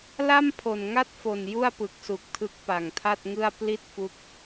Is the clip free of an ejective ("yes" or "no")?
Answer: yes